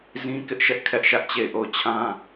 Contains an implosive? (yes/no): no